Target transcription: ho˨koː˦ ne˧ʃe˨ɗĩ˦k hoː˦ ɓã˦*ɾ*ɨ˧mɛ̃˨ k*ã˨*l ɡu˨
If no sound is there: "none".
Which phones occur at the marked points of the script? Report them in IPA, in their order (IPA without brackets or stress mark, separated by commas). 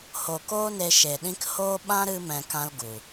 ɾ, ã˦